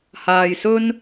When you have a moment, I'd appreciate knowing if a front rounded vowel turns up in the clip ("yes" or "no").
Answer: no